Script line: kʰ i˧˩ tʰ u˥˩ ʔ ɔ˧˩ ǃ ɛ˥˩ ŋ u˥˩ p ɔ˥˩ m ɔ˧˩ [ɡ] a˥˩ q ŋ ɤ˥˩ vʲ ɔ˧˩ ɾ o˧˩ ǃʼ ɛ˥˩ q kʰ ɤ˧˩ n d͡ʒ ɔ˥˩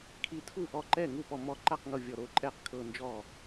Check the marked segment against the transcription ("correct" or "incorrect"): incorrect